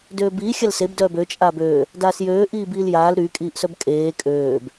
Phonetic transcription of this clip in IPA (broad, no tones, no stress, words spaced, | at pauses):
døːbiː xʲalseb dœːbø t͡ʃʼaːbøː | daːsjøː ʔiːbiːljaːl ɾy kʼiːʔsœbkʼeː kʼøːb